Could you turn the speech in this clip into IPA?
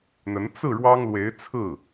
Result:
n̪ə˧˥n t͡sɹ̩˥˩ ɻwɑ˥ŋlwe˧˥ɪ̯t͡sʰɹ̩˥˩

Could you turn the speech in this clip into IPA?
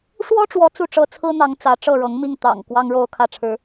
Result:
ʂwɔ˥ʈ͡ʂwɔ˧˥ t͡su˥˩ʈ͡ʂɤ˥ t͡sʰɹ̩˥n̪ɑ˧˥ŋ t͡sä˧˥ʈ͡ʂɤ˥˩ɻɤ˧˥ŋmi˥˩ŋ t̪ɑ̰˨˩ŋ kwɑ˥ŋɻo˥ʊ̯kʰä˥˩ʈ͡ʂʰɻ̩˥

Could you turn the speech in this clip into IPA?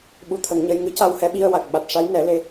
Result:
ɓu˧t̪ʰə˨˩˦ŋɲə˧j ŋɨ˧˥ ca˧whɛ˧˥ɓi˧ə̯wa˨˩k̚ ɓa˨˩t̚ʂa˧˥jnɛ˨˩˦le˧

